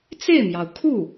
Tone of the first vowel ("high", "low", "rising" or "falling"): falling